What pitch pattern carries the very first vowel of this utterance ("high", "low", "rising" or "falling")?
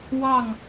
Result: falling